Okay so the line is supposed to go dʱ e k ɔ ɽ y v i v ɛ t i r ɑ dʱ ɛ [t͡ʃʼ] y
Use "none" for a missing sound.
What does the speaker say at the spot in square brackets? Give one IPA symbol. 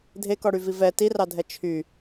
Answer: t͡ʃʰ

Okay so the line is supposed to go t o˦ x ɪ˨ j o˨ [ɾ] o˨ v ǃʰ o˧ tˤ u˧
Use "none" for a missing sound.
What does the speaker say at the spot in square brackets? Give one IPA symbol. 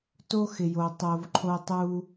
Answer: tˤ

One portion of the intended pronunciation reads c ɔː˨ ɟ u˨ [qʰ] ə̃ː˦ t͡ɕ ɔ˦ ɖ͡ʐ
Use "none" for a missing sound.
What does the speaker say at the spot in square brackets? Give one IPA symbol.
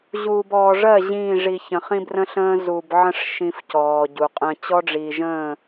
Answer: qʼ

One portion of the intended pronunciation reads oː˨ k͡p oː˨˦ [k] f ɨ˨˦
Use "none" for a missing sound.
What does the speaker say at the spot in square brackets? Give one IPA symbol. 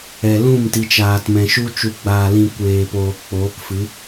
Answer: k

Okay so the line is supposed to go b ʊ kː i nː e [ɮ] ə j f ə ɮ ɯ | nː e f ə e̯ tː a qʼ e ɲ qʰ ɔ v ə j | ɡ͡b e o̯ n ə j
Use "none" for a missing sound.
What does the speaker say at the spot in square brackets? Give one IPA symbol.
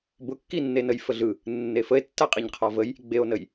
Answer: n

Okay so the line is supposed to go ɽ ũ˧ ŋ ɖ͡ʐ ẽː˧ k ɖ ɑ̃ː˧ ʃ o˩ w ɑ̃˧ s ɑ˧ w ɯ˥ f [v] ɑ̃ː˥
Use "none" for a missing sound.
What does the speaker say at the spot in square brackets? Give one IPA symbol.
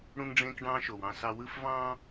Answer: v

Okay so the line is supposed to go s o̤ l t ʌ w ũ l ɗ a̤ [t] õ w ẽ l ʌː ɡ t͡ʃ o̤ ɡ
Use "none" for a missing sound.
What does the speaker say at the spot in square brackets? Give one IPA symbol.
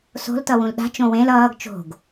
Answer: t͡ʃ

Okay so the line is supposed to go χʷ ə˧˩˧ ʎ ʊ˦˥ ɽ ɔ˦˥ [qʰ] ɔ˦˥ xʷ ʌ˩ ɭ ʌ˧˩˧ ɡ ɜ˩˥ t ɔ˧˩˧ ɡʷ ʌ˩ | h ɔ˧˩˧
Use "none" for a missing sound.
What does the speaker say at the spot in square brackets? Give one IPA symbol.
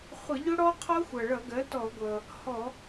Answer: qʰ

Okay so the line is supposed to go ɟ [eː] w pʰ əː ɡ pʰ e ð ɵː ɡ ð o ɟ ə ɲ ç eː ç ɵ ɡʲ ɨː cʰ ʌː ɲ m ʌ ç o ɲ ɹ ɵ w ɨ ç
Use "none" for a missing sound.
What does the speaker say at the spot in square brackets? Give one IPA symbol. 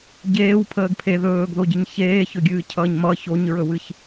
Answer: eː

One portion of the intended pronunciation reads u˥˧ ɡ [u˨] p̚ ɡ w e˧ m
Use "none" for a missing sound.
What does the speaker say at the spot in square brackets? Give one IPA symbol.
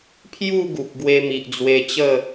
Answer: u˨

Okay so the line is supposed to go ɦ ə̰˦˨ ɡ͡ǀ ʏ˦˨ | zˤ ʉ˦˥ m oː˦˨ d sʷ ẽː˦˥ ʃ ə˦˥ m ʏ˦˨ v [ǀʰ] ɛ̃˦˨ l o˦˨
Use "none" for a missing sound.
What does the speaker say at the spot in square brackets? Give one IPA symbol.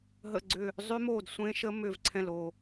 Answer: ǀʰ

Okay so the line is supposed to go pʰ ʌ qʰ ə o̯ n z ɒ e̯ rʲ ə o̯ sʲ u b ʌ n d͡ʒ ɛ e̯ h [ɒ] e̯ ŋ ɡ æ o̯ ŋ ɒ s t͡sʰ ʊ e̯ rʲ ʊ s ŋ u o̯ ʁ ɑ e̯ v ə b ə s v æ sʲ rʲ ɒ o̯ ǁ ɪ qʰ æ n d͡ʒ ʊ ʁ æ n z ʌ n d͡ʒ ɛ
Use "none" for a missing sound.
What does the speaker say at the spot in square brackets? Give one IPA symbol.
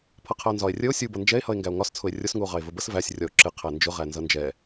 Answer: ʌ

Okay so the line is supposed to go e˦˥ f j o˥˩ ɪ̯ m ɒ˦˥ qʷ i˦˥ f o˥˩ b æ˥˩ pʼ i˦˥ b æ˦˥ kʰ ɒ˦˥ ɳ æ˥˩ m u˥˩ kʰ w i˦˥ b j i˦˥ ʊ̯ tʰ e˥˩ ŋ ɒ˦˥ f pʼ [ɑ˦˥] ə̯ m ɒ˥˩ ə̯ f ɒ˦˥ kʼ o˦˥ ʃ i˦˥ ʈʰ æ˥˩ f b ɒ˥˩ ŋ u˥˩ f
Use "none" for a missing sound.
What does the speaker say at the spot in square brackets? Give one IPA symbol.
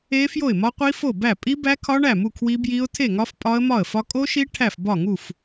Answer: ɒ˦˥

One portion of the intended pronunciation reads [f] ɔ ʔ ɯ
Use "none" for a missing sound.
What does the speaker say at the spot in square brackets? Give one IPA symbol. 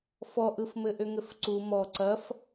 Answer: f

